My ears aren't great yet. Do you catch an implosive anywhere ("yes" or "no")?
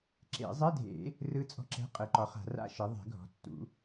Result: no